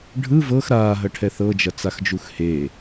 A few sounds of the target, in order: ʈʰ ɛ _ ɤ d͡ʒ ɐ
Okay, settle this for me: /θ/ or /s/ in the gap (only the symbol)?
θ